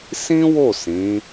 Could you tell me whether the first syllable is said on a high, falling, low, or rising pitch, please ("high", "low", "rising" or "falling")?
high